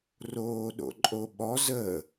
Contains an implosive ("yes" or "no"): yes